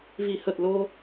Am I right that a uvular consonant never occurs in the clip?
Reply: yes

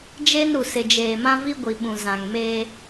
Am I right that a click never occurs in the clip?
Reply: yes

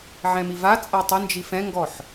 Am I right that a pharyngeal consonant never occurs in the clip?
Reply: no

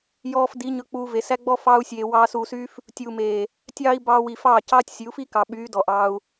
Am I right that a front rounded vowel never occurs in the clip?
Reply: no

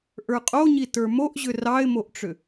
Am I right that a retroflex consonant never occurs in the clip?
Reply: no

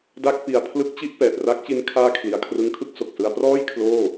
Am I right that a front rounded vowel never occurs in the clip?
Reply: yes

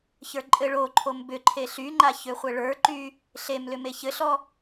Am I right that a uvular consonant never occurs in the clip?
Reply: no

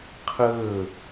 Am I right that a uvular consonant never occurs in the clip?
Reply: no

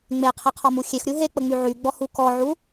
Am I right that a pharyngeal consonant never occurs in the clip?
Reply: no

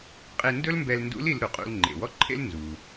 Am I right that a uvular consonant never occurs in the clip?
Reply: no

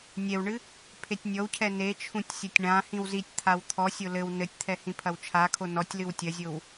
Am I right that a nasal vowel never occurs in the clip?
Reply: no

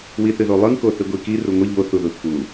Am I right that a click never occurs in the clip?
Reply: yes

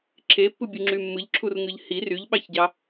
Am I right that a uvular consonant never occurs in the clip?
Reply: yes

